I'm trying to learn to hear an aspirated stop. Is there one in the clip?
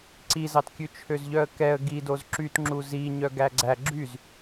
yes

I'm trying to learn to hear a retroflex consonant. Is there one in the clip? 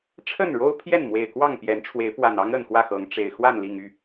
yes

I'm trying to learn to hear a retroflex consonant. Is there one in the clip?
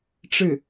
yes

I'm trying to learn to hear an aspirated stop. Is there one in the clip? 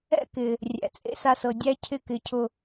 yes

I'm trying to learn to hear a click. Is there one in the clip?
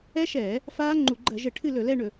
yes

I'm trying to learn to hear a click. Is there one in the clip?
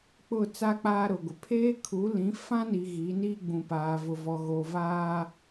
no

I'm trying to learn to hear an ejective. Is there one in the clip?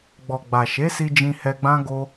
no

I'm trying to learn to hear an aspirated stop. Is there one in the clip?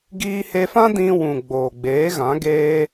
no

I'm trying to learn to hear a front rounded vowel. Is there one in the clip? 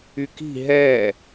yes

